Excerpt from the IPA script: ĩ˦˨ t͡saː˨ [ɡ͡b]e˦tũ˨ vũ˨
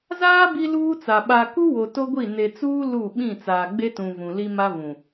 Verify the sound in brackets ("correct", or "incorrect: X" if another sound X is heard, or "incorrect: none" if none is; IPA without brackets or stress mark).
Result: correct